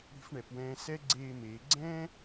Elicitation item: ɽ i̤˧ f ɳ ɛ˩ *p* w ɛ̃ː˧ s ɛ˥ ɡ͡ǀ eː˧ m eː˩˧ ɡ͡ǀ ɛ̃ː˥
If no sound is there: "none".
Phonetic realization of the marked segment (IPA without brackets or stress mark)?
p